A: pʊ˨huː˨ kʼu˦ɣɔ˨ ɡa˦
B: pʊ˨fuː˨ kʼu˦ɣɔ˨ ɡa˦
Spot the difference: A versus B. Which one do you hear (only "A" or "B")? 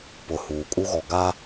A